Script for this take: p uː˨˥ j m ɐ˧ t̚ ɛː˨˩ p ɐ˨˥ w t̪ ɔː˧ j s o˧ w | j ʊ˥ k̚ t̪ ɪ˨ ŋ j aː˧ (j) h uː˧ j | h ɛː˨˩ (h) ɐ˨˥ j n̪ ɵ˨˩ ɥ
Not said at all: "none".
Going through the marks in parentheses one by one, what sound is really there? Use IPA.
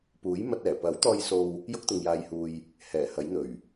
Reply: j, h

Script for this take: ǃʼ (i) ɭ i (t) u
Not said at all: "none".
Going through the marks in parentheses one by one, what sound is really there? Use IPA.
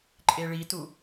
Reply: e, t

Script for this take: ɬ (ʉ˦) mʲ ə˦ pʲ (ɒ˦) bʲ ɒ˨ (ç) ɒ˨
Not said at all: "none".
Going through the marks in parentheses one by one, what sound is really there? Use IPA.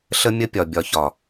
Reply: ə˦, ɒ˨, ç

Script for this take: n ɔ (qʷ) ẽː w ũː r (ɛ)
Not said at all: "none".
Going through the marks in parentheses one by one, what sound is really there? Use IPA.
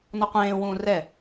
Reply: qʷ, ɛ

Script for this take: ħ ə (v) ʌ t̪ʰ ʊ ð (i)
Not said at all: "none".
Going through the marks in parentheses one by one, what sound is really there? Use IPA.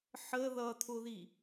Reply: ð, i

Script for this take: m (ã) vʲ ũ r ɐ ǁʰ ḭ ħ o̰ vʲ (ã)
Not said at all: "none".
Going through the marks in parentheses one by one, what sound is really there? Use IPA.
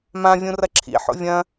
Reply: ã, ɐ̃

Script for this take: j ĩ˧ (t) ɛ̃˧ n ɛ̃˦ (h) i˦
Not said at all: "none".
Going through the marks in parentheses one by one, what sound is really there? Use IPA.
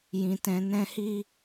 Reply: t, h

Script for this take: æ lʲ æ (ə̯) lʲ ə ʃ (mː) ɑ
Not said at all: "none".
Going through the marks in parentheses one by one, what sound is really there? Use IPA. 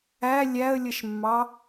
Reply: ə̯, mː

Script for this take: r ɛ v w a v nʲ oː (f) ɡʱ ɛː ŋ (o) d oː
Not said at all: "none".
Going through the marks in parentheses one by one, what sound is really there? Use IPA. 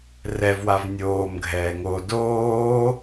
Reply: m, o

